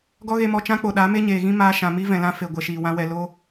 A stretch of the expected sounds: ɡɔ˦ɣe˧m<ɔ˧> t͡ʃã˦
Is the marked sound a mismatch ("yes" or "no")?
no